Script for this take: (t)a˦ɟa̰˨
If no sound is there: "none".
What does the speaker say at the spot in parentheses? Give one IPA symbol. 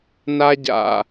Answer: n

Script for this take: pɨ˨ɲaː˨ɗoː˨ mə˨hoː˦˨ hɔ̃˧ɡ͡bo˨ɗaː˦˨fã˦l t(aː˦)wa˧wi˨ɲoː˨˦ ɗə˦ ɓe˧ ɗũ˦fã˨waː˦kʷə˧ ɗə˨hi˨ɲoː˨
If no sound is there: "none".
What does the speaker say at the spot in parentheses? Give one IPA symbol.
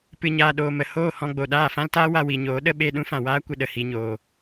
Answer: aː˦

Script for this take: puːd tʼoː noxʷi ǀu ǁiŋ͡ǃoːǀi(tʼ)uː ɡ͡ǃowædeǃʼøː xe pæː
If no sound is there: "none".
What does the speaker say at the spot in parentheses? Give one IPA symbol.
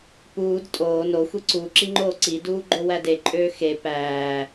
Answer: d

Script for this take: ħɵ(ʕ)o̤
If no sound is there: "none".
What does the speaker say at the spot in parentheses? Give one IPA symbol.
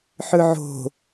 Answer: ʕ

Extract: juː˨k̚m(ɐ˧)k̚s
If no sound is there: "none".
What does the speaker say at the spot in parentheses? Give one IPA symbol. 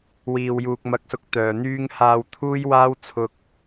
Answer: ɐ˨˥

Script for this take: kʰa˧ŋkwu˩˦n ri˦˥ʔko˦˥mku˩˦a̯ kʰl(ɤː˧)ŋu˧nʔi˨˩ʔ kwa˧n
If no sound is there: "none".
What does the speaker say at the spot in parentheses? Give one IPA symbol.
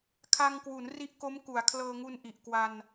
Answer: ɤː˧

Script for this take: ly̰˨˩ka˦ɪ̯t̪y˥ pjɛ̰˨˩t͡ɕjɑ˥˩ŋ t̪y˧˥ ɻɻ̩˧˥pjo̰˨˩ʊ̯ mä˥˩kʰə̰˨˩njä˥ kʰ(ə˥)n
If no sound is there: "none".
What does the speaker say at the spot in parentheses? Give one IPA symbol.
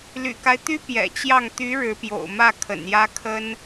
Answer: ə˥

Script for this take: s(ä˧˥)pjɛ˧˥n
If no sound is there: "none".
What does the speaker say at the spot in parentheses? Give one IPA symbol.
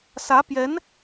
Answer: ä˧˥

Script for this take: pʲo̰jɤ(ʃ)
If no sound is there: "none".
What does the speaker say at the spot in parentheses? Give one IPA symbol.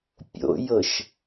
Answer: ʃ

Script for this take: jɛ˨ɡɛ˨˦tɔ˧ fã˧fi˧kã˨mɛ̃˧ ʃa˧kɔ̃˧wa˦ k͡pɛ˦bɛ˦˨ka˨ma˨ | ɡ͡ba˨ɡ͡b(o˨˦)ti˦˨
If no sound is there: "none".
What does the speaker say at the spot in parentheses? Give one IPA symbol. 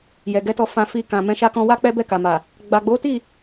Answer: o˨˦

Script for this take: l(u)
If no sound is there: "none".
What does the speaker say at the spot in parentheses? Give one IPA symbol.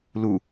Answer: u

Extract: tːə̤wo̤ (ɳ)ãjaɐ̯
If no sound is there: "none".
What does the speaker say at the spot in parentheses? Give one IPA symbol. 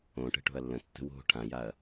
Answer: ʈʰ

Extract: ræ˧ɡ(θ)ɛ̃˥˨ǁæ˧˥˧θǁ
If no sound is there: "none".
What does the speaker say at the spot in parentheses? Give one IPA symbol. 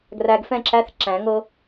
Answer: f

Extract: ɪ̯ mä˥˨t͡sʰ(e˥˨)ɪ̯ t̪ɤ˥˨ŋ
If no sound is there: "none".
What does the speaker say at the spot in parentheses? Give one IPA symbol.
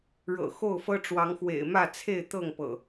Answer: e˥˨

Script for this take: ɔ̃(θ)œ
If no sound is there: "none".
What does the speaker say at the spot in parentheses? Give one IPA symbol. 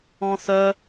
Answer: θ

